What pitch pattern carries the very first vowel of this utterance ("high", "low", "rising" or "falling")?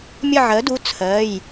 falling